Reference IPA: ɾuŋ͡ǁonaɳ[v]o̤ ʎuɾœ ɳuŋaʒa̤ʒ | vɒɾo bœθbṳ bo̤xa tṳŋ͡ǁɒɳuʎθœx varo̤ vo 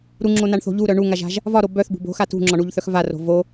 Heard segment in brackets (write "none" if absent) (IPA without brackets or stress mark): θ